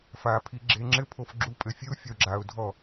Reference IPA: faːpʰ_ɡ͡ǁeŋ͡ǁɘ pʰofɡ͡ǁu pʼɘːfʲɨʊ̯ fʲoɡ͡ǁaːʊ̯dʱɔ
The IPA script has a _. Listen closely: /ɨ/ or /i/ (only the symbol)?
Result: i